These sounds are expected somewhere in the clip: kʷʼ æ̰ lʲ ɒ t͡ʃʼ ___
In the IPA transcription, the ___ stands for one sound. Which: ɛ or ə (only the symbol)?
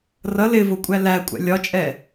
ɛ